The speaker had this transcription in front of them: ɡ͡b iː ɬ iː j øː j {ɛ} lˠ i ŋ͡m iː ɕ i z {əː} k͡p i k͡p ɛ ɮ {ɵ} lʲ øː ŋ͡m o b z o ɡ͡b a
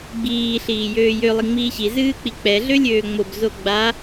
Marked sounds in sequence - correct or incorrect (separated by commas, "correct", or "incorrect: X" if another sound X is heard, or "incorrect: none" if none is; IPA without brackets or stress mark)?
incorrect: ø, incorrect: ɨː, incorrect: ø